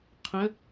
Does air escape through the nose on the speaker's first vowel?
yes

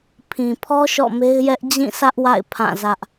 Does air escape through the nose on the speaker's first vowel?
yes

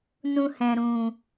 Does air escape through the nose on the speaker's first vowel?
yes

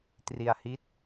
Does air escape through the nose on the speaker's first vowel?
no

